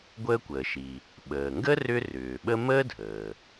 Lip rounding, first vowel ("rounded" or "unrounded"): unrounded